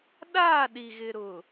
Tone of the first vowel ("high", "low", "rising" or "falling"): falling